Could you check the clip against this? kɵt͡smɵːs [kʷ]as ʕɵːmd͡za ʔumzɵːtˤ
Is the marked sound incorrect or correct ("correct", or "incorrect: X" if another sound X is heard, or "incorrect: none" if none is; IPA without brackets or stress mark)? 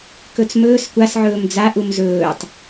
correct